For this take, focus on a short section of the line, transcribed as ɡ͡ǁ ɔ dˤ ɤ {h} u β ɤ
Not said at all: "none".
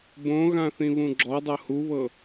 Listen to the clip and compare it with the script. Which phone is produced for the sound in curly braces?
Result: h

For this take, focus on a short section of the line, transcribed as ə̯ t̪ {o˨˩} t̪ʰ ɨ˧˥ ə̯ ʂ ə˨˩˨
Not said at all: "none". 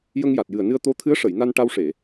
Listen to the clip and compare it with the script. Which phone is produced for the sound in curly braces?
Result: o˧˥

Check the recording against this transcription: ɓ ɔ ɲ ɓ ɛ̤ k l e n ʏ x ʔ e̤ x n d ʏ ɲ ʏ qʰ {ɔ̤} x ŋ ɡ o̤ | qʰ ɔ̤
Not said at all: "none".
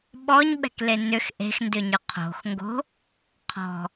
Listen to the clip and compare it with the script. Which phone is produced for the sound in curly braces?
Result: o̤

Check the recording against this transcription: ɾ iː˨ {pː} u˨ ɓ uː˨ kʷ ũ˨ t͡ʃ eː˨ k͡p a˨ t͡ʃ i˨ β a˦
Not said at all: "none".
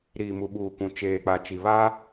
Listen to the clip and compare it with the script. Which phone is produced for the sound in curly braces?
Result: m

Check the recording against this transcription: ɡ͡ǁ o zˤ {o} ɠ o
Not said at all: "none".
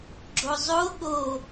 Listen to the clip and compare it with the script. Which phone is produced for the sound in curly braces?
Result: o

